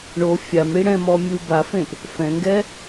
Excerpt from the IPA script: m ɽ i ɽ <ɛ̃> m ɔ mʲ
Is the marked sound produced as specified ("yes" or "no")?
yes